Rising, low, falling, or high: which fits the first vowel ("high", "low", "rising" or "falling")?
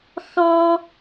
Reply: high